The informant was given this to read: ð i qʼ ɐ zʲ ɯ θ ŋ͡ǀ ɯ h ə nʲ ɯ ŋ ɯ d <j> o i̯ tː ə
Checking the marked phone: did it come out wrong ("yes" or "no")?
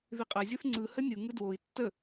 yes